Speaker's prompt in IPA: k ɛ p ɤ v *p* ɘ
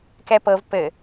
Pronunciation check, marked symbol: correct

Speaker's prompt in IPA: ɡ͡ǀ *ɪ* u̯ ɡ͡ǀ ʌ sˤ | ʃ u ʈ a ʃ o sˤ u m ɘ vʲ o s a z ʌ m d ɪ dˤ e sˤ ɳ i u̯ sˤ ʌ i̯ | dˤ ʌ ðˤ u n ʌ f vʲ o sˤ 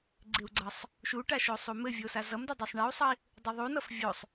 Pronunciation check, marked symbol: correct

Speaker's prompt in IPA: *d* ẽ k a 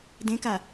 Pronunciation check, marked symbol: correct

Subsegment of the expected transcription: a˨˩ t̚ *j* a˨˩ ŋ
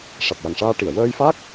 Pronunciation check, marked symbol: correct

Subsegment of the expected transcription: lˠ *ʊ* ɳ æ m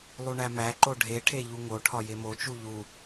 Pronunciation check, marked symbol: incorrect: u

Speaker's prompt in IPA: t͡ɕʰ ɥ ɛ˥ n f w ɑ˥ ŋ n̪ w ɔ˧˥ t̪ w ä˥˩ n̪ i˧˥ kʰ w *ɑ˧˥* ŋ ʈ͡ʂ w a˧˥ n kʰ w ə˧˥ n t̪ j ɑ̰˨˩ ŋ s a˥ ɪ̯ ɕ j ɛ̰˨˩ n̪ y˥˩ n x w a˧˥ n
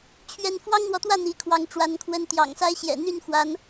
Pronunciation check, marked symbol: correct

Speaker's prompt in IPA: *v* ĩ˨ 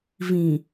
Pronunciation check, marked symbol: correct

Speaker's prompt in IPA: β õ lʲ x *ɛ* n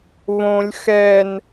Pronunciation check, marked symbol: correct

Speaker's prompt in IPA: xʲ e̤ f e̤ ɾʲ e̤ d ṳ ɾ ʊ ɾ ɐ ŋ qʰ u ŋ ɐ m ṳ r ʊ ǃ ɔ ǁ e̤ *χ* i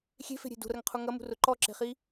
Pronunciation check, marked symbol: correct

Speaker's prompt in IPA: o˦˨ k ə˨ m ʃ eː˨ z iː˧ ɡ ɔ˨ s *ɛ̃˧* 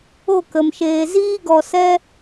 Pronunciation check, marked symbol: incorrect: ɛ˧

